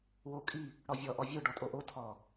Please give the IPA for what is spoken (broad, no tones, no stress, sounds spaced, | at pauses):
w o kʼ i | ɽ ɔ vʲ ɔ ʔ ɔ vʲ o ɖ ɔ tʼ o ʔ o tʰ ɔ